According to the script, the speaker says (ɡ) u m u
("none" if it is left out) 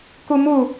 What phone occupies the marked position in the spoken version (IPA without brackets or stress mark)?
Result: k